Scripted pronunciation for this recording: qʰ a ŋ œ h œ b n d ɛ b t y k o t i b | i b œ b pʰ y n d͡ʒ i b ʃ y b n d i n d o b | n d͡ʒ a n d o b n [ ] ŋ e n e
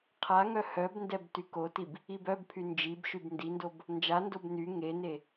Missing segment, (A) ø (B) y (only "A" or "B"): B